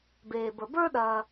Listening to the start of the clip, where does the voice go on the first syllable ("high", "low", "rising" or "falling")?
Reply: low